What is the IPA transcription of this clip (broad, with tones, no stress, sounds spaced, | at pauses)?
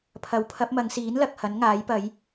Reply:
pʰ ɐ˨˥ w pʰ ɐ˨˥ p̚ m ɐ˨˧ ŋ s iː˨˥ n l ɐ˨ k̚ h ɐ˨˥ n ŋ aː˨˥ j p ɐ˨˥ j